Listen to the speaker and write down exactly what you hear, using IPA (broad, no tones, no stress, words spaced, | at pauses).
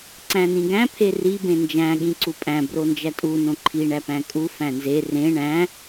ǀæ̃nĩɡæ̃ pʰeri bẽnd͡ʒæ̃ ɠĩǀupʼæ̃ brond͡ʒætʼu nõǃʰi ɳæpæ̃kʼu fæ̃nze rẽ ɳæ̃